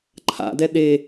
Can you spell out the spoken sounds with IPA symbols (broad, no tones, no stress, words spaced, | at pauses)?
ǃʰa̰dɛ ɗe